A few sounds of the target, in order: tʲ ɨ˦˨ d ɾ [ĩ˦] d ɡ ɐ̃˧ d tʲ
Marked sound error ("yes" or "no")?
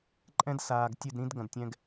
no